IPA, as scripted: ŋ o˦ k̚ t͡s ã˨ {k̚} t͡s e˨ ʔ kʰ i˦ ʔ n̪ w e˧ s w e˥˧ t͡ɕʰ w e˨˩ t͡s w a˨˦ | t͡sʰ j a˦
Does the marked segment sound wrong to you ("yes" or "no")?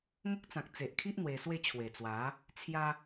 no